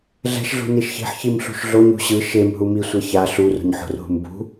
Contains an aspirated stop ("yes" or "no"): no